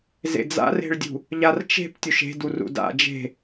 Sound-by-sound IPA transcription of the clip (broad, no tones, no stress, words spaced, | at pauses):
zḛd͡za̰re̤ɭdʲṳ | ʎart͡ʃe̤p tʲuʃe̤dur ṵda̰ d͡ʒe̤